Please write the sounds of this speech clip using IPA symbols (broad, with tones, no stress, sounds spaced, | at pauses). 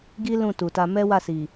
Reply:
ɡ i˦ l ũ˦˨ t u˨ t a˧ m ɛ˦ w a˦˨ s i˨